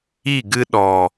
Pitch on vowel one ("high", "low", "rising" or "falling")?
falling